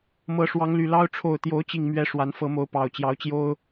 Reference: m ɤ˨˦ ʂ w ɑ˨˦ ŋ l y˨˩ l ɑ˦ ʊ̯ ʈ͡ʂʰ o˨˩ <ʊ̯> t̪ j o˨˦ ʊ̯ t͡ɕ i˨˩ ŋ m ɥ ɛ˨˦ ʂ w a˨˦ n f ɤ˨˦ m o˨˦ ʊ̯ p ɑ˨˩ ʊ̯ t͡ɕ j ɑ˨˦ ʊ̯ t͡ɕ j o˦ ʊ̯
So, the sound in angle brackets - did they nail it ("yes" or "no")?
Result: yes